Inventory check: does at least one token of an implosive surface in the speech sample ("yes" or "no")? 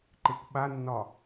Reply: yes